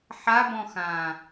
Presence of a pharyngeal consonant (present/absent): present